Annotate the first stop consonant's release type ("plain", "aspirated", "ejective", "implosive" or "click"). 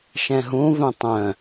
plain